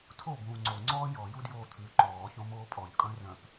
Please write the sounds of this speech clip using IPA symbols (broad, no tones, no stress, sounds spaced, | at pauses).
tʰ o b ũː ŋ͡ǀ o ŋ͡ǀ ɔː j ɔ j u d j oː t̪ʰ ʉ ǃ ɔː ç õ m oː pʼ ɔ ʎ kʼ œ̃ r œ̃ p